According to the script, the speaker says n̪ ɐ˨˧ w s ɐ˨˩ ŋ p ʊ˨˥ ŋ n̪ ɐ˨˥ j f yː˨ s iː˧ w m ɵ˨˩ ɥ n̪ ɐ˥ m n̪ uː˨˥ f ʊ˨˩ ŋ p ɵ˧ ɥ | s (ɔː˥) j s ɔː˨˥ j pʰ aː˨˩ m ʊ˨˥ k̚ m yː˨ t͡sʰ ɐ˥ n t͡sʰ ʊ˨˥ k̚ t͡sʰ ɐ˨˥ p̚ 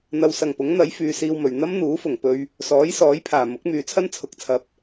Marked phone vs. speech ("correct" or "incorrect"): incorrect